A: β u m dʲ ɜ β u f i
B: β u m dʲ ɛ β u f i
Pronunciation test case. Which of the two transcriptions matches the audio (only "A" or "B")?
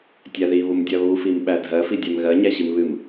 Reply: A